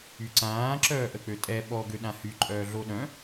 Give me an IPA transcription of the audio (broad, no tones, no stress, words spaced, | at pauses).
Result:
yǀãː ǁœːʔək͡pøtʼɛ ɓɔɡø ɗãhy ǃʼœːɮoɗœ̃